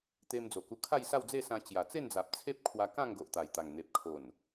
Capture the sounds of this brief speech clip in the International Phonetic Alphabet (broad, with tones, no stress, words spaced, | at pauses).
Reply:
t̪e˧md͡zo˨˩ku˧kʰa˥˧j sa˥˧wd͡ze˥˧sã˧ t͡ɕja˨˩t͡se˥˧nd͡za˨p̚ t͡sʰe˦p̚kʰwa˧ kã˥˧ŋɡo˨ʔt̪a˨˩jt̪a˨˩ŋ n̪e˨p̚kʰo˨˩n